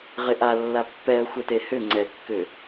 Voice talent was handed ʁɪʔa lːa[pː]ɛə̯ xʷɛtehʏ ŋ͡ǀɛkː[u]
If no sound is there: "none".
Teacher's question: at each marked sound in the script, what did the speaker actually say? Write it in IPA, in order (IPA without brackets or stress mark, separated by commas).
pː, ʏ